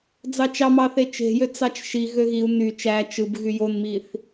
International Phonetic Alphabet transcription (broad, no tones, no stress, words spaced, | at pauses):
d͡zɑt͡ʃɑmɑθe t͡ʃe̤jø t͡sɑt͡ʃʃi ɣøɣiu̯ ny t͡ʃæ t͡ʃɯb ɣyjonmiθ